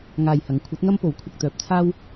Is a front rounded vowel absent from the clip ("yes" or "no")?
no